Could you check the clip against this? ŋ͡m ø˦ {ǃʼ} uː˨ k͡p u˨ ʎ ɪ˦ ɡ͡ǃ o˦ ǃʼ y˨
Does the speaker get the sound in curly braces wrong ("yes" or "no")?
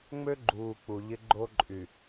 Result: yes